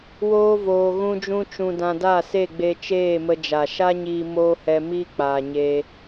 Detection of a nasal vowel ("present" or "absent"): present